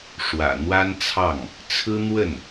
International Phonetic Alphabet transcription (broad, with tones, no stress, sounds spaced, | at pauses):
ʂ w ä̰˨˩ n̪ w a˥ n t͡sʰ ɑ˥˩ ŋ | t͡sʰ ɹ̩˥ n̪ w ə˥˩ n